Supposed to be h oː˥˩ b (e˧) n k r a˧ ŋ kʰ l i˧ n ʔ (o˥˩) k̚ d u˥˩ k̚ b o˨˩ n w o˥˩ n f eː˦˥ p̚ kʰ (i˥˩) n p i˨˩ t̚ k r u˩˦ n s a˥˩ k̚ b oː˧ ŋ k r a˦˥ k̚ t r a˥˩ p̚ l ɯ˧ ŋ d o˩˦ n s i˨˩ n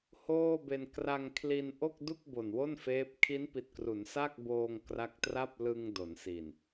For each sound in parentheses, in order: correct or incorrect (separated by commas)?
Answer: correct, correct, incorrect